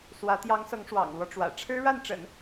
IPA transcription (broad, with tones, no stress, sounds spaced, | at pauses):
s w ä˧˥ t̪ j ɑ˧˥ ŋ s ɤ˧˥ ŋ ʂ w ɑ̰˨˩ ŋ l w ɔ˦ ʈ͡ʂ w ä̰˨˩ ʈ͡ʂʰ ɻ̩˥ ɻ a˥˩ n ʈ͡ʂ ə̰˨˩˦ n